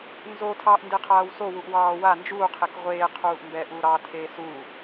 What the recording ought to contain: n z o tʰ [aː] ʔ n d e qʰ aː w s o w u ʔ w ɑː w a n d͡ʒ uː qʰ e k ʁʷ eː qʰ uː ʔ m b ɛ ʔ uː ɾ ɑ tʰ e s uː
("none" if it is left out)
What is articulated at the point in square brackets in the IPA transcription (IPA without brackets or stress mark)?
ɑː